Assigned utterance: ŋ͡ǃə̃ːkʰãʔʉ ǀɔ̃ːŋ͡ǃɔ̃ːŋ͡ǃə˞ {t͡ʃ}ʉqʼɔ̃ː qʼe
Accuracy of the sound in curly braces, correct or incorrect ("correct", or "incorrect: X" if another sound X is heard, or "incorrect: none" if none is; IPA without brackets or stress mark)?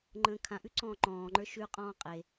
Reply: incorrect: ʃ